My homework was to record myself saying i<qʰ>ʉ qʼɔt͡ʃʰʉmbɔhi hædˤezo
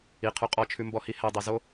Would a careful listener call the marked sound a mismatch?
no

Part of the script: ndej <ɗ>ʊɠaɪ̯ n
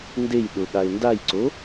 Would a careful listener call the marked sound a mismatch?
no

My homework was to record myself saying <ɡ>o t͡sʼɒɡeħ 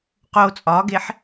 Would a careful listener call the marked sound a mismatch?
yes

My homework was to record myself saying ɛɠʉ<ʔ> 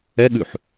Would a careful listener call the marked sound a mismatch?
yes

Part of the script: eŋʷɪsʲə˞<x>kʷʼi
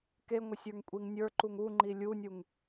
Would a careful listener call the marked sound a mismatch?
yes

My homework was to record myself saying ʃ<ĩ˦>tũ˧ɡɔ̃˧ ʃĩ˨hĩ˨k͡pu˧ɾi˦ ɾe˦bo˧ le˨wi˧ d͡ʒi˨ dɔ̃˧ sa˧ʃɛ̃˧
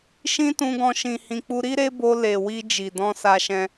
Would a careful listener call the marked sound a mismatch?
no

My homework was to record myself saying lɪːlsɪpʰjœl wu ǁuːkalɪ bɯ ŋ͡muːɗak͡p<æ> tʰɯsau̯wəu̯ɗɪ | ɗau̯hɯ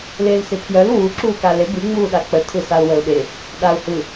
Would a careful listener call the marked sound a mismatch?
yes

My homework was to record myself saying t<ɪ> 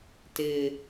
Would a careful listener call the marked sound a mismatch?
no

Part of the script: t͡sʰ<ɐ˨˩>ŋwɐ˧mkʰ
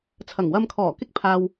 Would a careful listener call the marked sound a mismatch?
no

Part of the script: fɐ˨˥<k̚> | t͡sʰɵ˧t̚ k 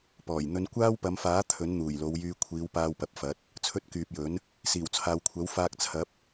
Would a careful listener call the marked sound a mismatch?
yes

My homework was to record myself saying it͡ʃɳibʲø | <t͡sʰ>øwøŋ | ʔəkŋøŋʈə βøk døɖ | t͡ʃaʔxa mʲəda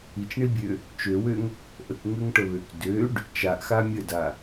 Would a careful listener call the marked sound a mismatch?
yes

